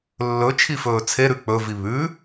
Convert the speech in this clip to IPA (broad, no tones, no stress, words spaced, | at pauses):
lːɵ t͡ʃʰifɵːt͡sʰeɾʉ k͡pɵvi βʉ